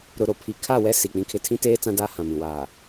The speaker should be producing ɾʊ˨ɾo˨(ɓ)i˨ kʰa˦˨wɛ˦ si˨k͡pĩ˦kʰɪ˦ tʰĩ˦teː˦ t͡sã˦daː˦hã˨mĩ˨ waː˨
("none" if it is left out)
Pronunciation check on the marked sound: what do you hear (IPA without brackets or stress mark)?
pʰ